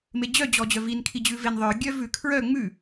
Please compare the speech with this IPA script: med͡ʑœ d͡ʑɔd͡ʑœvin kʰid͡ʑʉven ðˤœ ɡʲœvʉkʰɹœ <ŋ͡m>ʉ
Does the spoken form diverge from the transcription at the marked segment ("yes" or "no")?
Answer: no